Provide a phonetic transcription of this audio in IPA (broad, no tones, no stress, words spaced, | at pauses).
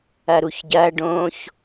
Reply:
ɐɾuçɟɐ ɖõç